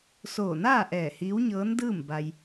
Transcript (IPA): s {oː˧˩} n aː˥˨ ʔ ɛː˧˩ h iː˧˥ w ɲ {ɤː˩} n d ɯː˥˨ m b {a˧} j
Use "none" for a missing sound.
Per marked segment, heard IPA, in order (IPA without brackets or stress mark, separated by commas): oː˧˩, ɤː˧˥, a˧